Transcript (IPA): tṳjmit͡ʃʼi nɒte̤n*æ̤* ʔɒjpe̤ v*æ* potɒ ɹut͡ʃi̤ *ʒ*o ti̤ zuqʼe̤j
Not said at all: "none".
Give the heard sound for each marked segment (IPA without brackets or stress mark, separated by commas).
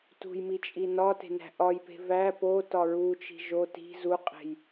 æ̤, æ, ʒ